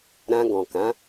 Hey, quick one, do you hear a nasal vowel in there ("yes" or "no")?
yes